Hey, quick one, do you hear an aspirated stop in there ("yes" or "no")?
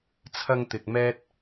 yes